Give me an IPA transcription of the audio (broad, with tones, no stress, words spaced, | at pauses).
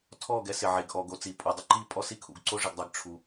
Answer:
tʰɔː˦˨ɡɛ˦ sɪ˨ʕe˨ɡ ʔɔː˨ɡ o˦t͡si˨pʼu˨ dˤʊ˦ǃiː˦ pʼɔ˦si˦kʰṵ˨ɡǀo˦ ʐɪ˨ɡdˤɪ˨ɡ ʈ͡ʂʰu˨